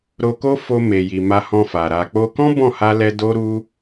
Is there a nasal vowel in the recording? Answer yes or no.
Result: yes